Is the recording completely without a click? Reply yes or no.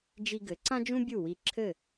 no